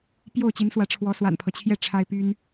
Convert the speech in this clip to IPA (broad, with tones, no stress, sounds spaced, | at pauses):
p j o˥˩ ʊ̯ t͡ɕ i˧˥ n s w ä˧˥ ʈ͡ʂʰ w ɔ˧˥ s w a̰˨˩ n pʰ ɤ˦ t͡ɕʰ j ɛ˥˩ ʈ͡ʂʰ a˥ ɪ̯ p y˥ n